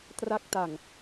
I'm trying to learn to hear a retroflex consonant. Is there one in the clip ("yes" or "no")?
no